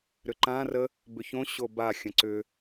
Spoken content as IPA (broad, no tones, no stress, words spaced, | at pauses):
ɾʏǃã rə | bʏçõ ɕoba xʲə̃ǀʏ